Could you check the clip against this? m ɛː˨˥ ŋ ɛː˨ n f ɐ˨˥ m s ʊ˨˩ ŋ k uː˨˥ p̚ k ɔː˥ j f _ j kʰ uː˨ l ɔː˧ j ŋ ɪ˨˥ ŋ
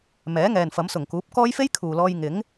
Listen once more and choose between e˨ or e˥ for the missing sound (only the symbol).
e˥